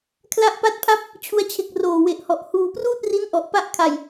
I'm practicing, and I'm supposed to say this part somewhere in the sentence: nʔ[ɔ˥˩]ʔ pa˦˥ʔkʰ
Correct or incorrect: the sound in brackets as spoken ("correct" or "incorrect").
incorrect